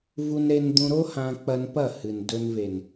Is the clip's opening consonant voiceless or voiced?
voiced